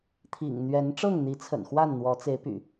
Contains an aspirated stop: yes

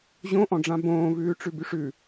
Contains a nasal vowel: yes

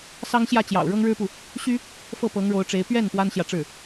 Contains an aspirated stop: no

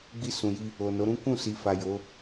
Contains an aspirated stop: no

